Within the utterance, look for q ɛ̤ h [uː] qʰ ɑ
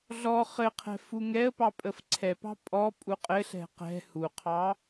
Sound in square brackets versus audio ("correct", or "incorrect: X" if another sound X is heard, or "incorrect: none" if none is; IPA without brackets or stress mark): incorrect: u